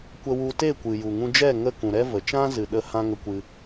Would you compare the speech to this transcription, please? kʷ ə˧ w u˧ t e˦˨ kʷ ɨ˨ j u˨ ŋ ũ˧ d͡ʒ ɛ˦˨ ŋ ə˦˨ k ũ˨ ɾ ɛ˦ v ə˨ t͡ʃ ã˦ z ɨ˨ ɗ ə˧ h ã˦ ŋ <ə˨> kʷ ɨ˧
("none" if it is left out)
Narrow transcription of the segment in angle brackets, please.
ə˧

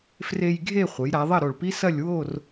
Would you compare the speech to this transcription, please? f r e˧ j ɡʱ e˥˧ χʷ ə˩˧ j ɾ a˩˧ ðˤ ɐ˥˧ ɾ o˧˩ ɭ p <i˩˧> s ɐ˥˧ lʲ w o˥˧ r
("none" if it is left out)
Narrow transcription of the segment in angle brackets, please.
i˥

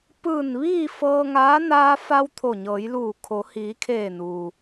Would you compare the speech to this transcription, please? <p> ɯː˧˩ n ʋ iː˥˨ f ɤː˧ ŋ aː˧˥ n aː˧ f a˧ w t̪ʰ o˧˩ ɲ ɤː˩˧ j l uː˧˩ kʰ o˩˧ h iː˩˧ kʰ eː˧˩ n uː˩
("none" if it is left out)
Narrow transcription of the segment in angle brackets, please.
p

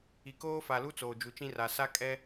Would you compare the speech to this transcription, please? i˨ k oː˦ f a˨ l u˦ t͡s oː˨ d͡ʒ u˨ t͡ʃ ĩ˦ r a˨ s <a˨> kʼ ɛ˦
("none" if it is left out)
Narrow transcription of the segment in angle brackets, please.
a˦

